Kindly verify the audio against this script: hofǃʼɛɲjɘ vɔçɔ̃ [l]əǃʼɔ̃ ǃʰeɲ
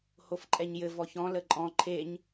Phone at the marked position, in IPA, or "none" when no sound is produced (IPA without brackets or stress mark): l